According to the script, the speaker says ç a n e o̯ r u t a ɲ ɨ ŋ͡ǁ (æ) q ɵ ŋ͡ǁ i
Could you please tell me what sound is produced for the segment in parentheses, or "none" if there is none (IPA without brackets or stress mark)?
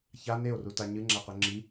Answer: a